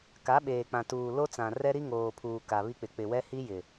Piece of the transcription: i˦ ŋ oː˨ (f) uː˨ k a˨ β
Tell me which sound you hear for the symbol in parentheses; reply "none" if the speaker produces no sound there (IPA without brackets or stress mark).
pʰ